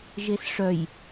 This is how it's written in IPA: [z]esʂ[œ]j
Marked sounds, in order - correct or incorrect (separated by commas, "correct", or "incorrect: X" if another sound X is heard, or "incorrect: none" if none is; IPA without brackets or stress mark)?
incorrect: ʒ, correct